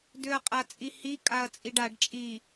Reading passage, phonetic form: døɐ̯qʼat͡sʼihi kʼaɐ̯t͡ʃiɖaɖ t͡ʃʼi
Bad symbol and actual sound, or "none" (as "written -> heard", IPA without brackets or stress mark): t͡ʃ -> t͡sʼ